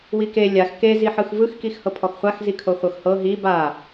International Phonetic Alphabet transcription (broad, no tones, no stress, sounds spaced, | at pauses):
w i k e lʲ a x k e z i ħ ɯ x v ɯ x k i x h ɤ pʰ ɔ x χʷ a x z i kʰ o χʷ ɤ x h ɤ ɦ i b a